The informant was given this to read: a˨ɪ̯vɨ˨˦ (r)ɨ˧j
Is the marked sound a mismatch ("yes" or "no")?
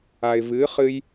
yes